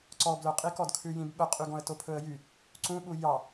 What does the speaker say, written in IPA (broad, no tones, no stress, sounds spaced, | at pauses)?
ǀ ɔ b l œ qʼ i k ɔ d kʰ ʉ j ĩ b ɓ œ qʼ y ɡ ɔ̃ ə̯ t o pʰ ɵ ə̯ j y | ǀ ũ ɓ u j ɑ